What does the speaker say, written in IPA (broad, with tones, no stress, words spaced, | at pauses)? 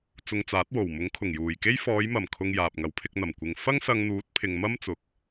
t͡sʊ˧ŋt͡saː˨˥t̚wo˨˩w mʊ˨˥ŋkʰʊ˨˩ŋjuː˨˩jke˥j fɔː˨˧jmɐ˨˩mkʰʊ˨ŋ jaː˨p̚ŋɐ˨˥wpʰɪ˧k̚n̪ɐ˨˩m kʷɪ˨ŋ fɐ˥ŋsɐ˧ŋn̪uː˨˥t̚ pʰɪ˨ŋmɐ˥mt͡sʊ˨k̚